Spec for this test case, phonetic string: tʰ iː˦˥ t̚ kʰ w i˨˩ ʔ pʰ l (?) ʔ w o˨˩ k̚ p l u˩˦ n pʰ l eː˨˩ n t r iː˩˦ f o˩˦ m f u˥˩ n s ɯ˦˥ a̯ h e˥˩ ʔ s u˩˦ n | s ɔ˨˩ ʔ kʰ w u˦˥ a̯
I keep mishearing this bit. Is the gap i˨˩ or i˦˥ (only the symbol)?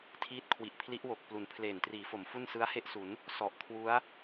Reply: i˦˥